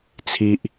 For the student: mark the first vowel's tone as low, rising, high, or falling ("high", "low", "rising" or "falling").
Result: high